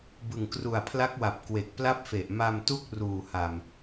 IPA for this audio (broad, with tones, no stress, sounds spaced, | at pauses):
b ɯ˨˩ ŋ k r u˨˩ a̯ pʰ l a˦˥ k̚ w a˨˩ p̚ k w e˨˩ k̚ p l a˥˩ p̚ f e˨˩ ʔ m a˧ m t u˥˩ k̚ r uː˨˩ h a˨˩ m